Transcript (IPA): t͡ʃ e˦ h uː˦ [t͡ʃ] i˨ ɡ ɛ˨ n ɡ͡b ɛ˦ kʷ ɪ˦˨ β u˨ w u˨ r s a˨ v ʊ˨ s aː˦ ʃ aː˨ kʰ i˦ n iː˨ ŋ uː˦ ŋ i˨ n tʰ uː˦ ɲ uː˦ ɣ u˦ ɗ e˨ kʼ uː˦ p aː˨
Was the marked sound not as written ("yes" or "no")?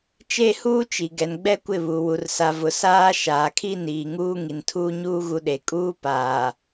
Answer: no